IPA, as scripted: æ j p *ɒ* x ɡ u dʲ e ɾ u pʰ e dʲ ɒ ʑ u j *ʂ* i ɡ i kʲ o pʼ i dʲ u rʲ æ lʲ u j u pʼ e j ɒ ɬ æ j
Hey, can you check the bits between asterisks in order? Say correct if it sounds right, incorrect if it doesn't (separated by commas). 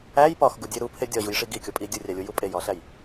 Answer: correct, correct